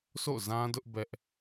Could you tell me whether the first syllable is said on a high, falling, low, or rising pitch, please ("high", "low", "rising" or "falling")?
falling